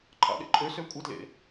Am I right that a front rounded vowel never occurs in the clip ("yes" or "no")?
no